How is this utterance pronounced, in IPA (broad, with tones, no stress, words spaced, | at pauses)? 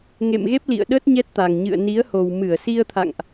ŋḛ˧˨mɣe˦˥p̚lḭ˧˨ə̯ɗə˦˥t̚ ɲɛ˦˥t̚t̪a˨˩ŋ ɲɨ̰˧˨ə̯ni˨˦ə̯ho˨˩w mɨ˧˩ə̯si˧ə̯t̪ʰa̰˧˨ŋʔ